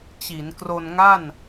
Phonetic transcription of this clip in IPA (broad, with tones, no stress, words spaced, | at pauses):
t͡ɕi˩˦nkro˧nŋa˥˩n